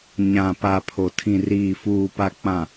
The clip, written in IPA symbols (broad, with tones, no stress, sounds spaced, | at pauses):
ɲ ã˨ p a˨ pʰ o˨ tʰ ĩ˨ r iː˨ f uː˨ p a˨ k͡p ã˨